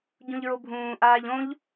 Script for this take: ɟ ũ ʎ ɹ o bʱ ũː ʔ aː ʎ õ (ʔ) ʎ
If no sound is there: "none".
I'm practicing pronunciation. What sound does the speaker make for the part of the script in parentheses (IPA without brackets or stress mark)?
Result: none